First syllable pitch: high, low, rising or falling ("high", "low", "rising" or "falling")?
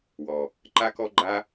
low